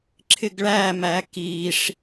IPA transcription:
ǁʰ ɪ ɡ ɭ æ m æ k i ʂ

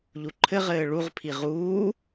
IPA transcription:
ʎ u ǃʰ ɘ ʁ ɘː ɭ u ʁ pʰ i ʁ uː

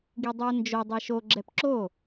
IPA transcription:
ɡ i dˤ u ə̯ n d͡ʒ o dˤ ɛ ʃ o ɡ͡ǁ ɛ p ǁ o

